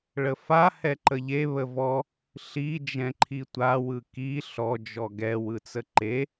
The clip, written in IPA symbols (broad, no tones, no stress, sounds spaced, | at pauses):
ɭ ə f a h ɛ ǃ ə ʎ e β ə v ɔ | ɬ i d͡ʒ ɛ̃ ǃʰ i tʷ a w ɯ k i ɬ ɔ d͡ʒ ɔ ɡ ɛ w ɯ t͡s ə ǃ e